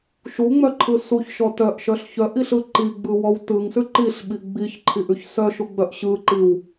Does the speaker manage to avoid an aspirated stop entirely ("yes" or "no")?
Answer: no